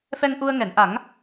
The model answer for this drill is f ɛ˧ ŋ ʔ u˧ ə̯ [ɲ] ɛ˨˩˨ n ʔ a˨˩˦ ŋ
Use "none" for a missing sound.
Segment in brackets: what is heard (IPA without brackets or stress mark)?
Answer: ŋ